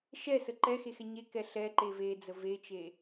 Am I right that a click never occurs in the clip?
no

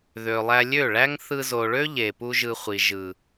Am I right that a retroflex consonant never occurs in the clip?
no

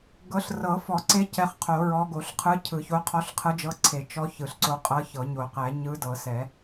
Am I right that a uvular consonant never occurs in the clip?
no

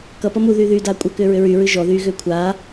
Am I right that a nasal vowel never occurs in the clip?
yes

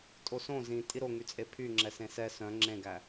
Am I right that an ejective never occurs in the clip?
no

